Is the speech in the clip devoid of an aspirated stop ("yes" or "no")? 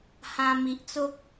yes